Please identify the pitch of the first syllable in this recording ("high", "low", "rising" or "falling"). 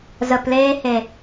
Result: low